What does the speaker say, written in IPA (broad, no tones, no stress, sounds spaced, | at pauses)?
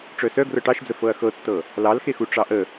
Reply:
ʈ͡ʂ œ s œ ɡ r ɤ ʈ ɑ ʃ d͡z ə f ɤ ɐ̯ x ɤ tː ɤ | l ɑ l x e x u ʈ͡ʂ ɑ ʔ ə